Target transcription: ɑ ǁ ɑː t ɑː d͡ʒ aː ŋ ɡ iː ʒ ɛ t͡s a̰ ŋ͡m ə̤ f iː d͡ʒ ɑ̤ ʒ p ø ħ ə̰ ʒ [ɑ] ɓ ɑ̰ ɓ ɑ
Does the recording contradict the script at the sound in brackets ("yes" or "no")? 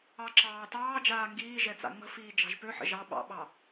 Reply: no